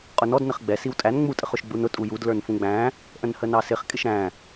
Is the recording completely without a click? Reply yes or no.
yes